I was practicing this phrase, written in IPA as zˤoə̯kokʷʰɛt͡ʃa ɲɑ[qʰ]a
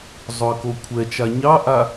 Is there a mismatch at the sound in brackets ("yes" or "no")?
yes